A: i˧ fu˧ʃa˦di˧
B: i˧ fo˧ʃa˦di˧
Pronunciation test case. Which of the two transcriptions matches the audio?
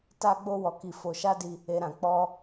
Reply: B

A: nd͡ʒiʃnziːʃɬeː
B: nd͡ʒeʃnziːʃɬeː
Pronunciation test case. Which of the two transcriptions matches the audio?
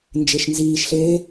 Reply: B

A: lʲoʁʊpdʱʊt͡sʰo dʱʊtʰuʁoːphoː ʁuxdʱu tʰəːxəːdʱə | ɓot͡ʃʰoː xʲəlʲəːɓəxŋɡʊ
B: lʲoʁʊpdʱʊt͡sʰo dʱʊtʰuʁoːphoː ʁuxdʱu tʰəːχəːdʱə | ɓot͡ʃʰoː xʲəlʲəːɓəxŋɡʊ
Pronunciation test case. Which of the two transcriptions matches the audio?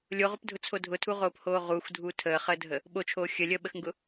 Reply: B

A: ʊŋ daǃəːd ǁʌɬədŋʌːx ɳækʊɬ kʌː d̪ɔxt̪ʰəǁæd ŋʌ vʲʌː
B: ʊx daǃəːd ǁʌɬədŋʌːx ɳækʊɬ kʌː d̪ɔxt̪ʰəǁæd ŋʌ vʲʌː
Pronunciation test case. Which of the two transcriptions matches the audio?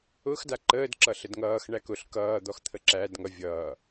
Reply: B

